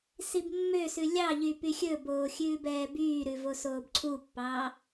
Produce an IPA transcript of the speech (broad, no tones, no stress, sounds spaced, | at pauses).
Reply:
s i b mː ø s ʉ lʲ ɑ ʎ y p y xʲ ɵ b oː xʲ ʉː b ɛː b yː ɾ ʉ v o s oː b ǀʰ u pː ɑː